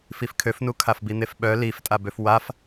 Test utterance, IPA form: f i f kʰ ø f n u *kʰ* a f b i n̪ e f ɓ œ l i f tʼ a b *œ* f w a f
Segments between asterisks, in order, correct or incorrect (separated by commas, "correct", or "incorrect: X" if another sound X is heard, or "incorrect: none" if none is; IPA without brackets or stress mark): correct, incorrect: ø